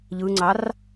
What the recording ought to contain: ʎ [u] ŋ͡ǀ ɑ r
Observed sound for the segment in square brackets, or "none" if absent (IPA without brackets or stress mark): ɯ